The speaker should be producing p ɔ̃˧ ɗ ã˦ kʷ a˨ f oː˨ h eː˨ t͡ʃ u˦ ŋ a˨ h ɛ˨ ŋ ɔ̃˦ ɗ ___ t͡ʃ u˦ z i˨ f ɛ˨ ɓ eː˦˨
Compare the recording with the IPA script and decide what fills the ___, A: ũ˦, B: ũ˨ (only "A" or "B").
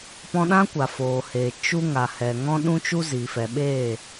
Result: A